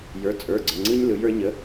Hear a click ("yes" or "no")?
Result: yes